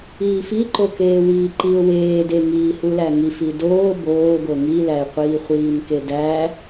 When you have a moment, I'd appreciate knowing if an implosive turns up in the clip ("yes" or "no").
no